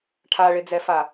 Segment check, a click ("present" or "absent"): absent